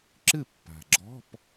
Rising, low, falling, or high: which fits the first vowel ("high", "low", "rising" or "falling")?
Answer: falling